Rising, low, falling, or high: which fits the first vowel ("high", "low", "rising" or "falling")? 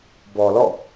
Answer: low